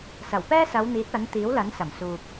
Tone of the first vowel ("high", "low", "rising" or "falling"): low